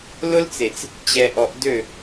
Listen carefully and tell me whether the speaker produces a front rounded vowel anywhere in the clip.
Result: yes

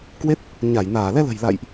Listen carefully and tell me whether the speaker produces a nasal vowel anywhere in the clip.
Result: no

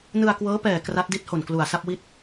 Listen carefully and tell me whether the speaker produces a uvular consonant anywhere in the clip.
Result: no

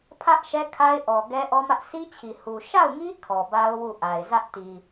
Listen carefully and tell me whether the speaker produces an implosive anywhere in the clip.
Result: no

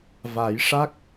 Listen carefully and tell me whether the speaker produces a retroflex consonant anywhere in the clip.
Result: yes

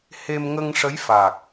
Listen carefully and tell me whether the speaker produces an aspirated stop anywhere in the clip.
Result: no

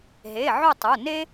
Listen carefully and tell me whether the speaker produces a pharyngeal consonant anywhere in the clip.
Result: yes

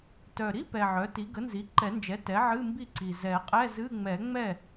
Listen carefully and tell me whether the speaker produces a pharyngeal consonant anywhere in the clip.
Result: yes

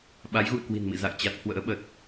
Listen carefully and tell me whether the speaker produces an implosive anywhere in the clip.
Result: yes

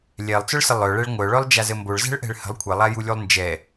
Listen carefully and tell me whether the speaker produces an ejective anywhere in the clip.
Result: no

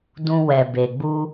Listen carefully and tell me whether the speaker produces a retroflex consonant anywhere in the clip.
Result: no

